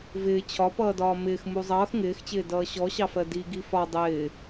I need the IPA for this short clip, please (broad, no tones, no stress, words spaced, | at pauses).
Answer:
vɪː t͡ɕʰɒpʌːdɒː mɪːxmu zˤʌːx ŋɪːxt͡ɕɪː dʌːɕɔɕɑfɜ di ɡifɒ dˤɪː